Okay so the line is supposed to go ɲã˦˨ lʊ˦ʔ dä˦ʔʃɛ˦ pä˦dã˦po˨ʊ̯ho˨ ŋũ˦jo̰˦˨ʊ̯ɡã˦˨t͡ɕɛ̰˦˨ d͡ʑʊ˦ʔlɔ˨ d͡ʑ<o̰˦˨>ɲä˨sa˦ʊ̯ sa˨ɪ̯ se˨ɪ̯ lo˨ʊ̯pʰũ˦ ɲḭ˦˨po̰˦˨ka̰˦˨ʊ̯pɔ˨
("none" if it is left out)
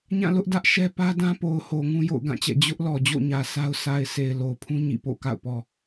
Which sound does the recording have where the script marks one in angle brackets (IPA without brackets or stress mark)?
o̰˦˨